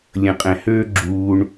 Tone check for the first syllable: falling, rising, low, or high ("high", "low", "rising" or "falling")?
low